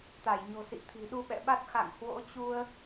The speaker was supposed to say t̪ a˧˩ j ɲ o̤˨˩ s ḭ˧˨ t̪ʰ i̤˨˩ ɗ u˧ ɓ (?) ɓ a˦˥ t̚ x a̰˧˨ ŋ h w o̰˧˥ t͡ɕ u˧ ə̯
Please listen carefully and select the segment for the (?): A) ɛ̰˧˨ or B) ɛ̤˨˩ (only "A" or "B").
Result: A